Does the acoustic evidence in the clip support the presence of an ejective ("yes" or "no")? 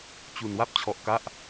no